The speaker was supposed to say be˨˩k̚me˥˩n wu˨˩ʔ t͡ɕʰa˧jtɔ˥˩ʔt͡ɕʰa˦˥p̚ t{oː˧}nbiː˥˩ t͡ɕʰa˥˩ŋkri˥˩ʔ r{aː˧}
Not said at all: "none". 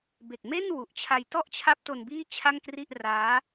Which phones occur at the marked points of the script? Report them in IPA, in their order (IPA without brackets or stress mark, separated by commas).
o˧, aː˦˥